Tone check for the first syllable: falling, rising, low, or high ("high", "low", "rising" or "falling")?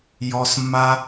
low